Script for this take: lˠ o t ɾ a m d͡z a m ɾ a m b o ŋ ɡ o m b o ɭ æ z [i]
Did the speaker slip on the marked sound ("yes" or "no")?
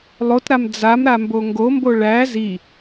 no